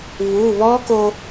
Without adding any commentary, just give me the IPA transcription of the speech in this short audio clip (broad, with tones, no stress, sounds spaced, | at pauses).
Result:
β u˩˧˩ β ɔ˦˥ k o˧